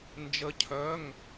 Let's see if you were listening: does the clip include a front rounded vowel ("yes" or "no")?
yes